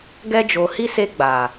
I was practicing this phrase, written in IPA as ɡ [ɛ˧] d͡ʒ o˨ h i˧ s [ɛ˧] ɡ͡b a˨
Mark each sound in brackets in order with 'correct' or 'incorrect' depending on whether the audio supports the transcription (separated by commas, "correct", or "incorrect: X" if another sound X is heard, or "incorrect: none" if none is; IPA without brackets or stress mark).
correct, incorrect: e˧